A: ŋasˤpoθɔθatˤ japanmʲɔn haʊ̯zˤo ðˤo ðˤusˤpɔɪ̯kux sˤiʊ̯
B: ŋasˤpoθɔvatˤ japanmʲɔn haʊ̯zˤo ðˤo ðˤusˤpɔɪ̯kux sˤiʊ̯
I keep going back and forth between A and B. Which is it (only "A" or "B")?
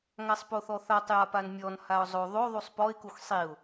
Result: A